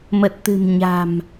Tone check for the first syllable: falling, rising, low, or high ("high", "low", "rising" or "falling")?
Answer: low